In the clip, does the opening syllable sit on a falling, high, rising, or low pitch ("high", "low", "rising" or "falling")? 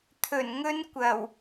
low